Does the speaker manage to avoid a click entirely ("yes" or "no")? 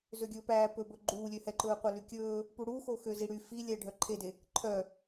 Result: no